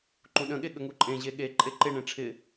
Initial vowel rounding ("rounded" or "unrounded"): rounded